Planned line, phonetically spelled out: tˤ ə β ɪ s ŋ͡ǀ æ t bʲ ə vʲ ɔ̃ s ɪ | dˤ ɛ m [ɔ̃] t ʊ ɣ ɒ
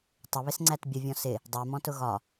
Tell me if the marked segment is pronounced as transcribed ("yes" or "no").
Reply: yes